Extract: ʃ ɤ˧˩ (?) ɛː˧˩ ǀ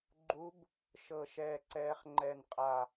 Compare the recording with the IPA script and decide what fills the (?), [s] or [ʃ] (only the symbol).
ʃ